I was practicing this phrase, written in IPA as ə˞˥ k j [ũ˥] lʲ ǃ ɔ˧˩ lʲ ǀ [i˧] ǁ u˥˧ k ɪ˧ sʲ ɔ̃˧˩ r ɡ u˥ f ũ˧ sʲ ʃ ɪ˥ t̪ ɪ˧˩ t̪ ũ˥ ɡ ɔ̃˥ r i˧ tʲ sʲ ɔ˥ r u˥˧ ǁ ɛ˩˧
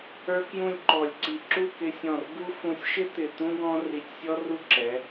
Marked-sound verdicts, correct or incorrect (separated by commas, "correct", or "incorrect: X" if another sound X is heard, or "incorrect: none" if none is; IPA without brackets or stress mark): incorrect: ũ˥˧, incorrect: i˧˩